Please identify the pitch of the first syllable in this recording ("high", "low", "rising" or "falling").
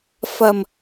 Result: low